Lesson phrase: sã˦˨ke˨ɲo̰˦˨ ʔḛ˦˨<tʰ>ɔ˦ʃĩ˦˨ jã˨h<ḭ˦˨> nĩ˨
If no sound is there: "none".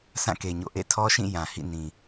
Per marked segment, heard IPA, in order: tʰ, ḭ˦˨

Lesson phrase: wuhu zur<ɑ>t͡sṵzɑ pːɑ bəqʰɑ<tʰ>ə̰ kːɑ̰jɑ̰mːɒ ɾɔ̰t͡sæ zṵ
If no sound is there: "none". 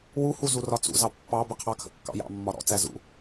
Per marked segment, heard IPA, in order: ɒ, kʰ

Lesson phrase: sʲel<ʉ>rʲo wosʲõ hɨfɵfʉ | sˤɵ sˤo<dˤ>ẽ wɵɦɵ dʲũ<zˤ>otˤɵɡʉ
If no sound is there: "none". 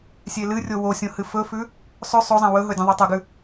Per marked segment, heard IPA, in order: ɨ, zˤ, ðˤ

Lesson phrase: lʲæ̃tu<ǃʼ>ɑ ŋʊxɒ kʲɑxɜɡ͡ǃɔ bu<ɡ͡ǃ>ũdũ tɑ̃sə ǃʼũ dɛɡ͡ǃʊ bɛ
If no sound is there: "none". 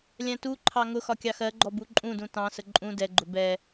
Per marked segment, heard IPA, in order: ǃʰ, ǃʼ

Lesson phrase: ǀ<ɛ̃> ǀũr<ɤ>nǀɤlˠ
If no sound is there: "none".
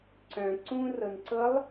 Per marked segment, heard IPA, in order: œ̃, ɤ

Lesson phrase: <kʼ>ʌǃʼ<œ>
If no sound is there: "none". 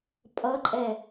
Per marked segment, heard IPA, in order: pʼ, ɛ

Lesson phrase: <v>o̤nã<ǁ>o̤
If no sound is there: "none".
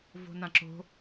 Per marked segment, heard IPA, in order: v, ǁ

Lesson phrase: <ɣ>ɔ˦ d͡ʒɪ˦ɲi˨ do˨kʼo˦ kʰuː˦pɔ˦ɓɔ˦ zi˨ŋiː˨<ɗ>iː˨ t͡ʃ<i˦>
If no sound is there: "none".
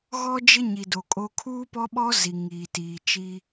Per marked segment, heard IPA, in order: ɣ, t, i˦

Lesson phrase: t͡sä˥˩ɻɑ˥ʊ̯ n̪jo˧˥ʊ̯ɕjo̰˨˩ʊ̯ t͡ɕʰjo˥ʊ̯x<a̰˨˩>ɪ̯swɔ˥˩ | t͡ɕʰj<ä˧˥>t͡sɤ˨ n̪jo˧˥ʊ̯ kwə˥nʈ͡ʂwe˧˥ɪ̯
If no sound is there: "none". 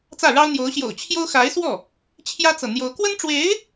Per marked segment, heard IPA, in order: a˧˥, ä˥

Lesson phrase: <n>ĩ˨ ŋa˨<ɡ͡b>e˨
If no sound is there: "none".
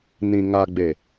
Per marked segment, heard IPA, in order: n, ɡ͡b

